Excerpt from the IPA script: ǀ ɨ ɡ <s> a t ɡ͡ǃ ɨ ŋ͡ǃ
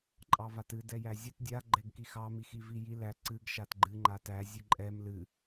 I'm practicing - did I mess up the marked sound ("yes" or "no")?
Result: yes